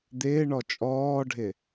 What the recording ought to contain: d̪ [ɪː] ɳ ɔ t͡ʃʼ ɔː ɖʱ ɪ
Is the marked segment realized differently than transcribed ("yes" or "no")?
no